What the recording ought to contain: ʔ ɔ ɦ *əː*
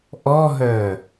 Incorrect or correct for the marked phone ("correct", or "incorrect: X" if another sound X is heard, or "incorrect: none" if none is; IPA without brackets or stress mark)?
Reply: incorrect: œː